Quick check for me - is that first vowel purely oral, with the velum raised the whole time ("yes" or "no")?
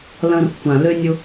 no